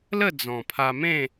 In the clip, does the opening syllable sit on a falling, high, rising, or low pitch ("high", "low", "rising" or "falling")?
falling